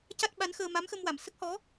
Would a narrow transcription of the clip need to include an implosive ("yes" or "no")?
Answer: yes